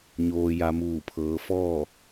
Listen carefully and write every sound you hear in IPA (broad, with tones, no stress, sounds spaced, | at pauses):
ɲ oː˧ j a˧ m uː˧˩ pʰ ɤː˩˧ f ɔː˥˨